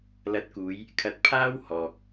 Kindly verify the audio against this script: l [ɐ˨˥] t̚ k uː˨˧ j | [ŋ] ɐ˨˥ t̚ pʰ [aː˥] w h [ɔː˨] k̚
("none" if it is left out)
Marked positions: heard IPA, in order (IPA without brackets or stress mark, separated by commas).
ɐ˨˥, kʰ, aː˥, ɔː˨